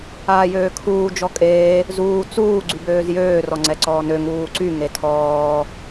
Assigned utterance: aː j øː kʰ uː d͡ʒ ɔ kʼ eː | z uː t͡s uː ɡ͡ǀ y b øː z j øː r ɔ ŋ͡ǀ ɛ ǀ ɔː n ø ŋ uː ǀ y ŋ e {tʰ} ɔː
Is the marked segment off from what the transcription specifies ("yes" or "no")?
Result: no